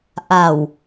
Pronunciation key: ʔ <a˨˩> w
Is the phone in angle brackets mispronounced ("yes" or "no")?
no